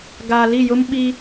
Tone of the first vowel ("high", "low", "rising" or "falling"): low